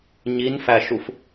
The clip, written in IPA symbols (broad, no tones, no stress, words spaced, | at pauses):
ɲinfæʃuf